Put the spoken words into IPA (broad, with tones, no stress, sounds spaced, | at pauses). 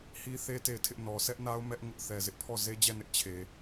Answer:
h i˦ θ e˦ t e˦˨ ɪ̯ tʰ ɪ˦ ʔ n ɔ˨ s ɛ˦ ʔ n a˦ ʊ̯ m ɛ˦ ʔ ŋ ʊ˦ ʔ θ ɛ˨ z ɪ˦ ʔ pʰ ɔ˦˨ z e˦ d͡ʑ ɛ˦˨ n ɪ˦ ʔ t͡ɕʰ e˨